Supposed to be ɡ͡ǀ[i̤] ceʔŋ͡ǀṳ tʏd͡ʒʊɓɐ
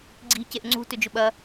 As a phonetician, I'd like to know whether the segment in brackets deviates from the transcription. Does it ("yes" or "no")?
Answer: no